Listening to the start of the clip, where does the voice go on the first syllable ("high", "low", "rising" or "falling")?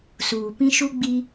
low